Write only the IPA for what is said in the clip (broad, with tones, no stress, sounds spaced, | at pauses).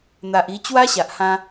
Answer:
n̪ a˨ ʔ i˧ t͡ɕ w a˦ ɕ a˨ ʔ h ã˧